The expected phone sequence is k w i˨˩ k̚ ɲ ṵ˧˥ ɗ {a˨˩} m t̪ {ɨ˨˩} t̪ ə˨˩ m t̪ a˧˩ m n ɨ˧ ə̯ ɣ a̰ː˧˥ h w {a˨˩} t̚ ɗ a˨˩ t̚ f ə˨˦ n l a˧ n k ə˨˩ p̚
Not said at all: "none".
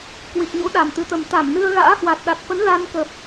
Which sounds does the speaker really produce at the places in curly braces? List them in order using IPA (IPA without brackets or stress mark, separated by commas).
a˨˩, ɨ˨˩, a˨˩